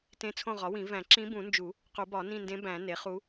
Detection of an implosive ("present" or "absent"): absent